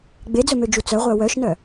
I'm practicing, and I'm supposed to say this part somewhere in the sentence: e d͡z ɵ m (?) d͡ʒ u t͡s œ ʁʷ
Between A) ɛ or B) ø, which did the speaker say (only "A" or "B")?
B